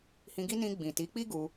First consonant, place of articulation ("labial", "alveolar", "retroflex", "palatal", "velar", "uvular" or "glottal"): glottal